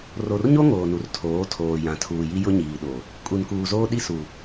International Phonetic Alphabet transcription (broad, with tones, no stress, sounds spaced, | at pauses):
r o˨ r ɲ o˦ ŋ oː˨ n u˨ r tʰ oː˨˦ tʰ oː˨ j ã˨ tʰ uː˨ j i˦ j ʊ˦ ɲ iː˨ ɗ o˨ | kʼ u˨ n k uː˨ z oː˦ ɗ i˦ s u˨